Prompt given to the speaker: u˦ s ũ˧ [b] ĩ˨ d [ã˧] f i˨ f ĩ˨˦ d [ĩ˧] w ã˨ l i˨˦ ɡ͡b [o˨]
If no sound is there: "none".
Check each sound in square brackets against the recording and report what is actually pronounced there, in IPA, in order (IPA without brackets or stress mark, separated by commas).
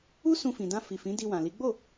f, ã˧, i˧, o˦˨